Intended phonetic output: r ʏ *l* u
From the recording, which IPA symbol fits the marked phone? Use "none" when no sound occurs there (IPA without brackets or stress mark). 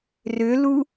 l